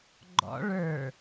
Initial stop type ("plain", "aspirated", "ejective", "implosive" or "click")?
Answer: click